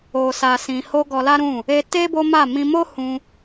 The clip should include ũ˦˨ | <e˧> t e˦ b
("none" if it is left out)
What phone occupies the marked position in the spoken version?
e˧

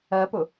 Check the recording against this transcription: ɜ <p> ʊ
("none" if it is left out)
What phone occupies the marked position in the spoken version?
p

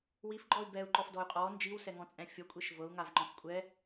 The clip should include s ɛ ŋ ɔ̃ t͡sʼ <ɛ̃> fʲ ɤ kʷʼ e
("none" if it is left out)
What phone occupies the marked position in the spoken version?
ɛ̃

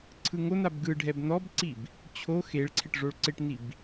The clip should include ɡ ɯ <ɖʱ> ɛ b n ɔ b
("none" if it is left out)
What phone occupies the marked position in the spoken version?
ɖʱ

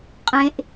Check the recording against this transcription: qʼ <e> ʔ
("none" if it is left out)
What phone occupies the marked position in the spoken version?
ẽ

